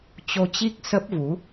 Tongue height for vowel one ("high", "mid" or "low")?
mid